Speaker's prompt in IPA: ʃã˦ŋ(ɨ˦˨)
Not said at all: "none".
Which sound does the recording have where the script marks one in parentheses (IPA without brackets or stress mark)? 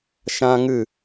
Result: ɨ˦˨